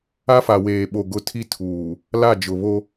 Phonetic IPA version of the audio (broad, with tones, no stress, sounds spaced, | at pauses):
a˦ f a˨ w eː˨ ɓ o˨ ɡ ʊ˦ tʰ i˦ tʰ uː˨ | l a˦˨ d͡ʒ ʊ˨ β o˦